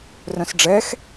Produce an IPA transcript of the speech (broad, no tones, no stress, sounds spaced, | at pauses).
r œ̃ s ɖ͡ʐ ɛ x